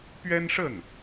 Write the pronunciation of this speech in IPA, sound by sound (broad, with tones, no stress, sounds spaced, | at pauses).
p ɥ ɛ˥ n ʂ ə˥˩ n